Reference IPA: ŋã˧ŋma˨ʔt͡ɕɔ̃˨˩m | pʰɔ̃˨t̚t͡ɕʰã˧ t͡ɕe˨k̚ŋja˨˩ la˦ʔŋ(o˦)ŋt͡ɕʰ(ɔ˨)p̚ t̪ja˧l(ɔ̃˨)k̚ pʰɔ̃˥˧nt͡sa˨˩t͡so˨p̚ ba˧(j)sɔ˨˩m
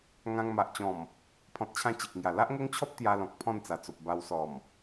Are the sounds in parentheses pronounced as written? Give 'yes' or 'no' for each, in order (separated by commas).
yes, no, yes, no